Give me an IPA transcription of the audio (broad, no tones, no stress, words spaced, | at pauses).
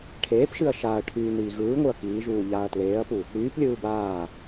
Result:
ʈʰeːpʃɨɐ̯ ʃaɐ̯ʈʰyː niːɣɯːŋʷɯɐ̯ kiːʒuː ʎaːɐ̯tleːɐ̯pu | ɽyːplʲɯː baː